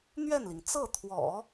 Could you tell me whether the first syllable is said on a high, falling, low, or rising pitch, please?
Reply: falling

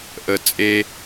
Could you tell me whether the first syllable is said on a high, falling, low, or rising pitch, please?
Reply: low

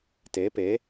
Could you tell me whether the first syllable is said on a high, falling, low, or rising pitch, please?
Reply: rising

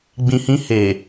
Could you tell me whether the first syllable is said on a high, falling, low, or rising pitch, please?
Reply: low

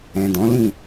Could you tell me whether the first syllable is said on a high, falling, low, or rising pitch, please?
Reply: low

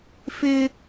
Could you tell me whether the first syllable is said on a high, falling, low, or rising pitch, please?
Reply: high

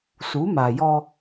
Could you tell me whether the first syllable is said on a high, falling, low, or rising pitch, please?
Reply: rising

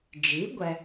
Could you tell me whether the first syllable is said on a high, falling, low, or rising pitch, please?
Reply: rising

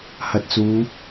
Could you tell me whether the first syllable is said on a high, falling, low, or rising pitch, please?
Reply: rising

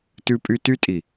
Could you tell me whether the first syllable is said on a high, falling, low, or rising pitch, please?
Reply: high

